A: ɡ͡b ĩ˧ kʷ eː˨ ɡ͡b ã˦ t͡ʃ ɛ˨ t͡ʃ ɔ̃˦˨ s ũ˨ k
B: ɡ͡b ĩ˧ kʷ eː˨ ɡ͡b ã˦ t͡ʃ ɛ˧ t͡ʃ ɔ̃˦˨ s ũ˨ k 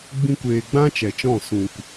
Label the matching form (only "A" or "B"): A